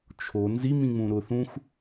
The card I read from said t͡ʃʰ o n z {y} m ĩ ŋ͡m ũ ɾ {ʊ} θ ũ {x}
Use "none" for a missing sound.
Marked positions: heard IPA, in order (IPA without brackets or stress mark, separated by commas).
i, ʊ, x